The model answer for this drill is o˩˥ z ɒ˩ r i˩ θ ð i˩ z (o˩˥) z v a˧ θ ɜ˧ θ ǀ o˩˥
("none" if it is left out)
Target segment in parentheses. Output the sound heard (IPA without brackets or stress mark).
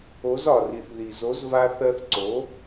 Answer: o˩˥